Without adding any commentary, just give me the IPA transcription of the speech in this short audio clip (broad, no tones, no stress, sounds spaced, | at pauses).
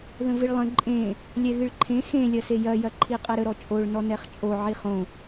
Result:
ð ə̃ v ɨ ɭ lˠ ə̃ ǃʼ ẽ | lʲ ɛ ɣ ɨ ɭ ǃʰ ẽ x ẽ lʲ ɐ s e j ɐ j ɐ ǃʰ i qʼ ɛ ɾ ə ɾ ɔ t͡ʃʼ o ɭ n ɔ n ɛ χ t͡ʃʼ o ʕ i χ õ